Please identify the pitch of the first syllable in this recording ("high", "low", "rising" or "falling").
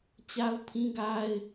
high